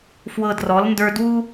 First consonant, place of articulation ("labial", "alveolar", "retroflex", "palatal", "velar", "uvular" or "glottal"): labial